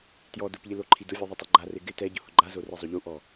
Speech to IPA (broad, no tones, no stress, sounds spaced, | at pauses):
t j ɔ d ʊ p ʎ ɪ l o ǃʰ i d ʊ vʲ o ðˤ u tˤ o ɡ͡ǃ a r e ɡ ɪ t ɛ ɟ ʊ h ʊ ɡ͡ǃ a z o r e zˤ o ʎ u ʔ ɔ